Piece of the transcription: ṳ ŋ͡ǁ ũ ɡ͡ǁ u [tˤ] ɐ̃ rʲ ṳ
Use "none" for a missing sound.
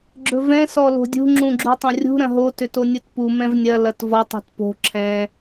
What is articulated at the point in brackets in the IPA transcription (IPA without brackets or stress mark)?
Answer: tˤ